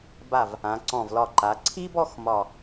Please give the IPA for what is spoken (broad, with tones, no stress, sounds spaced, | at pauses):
b a˧˩ v | ã˩˧ ǀ ɔ̃˧˩ v l ɒ˧˩ ǃ a˩˧ ǀʰ i˥ b ɔ˥˧ x m ɒ˧˩